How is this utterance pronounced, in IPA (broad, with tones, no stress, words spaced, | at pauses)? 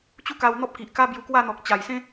t͡ɕu˦ka˧wn̪ɔ˦p̚ki˨ʔ ka˦bju˧kwa˥˧ n̪ɔ˨k̚ t͡ɕa˨˩jsẽ˦